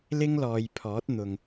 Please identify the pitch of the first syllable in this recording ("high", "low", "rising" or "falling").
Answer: high